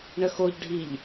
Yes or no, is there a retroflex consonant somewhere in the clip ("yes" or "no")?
yes